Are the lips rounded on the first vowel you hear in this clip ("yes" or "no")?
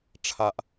no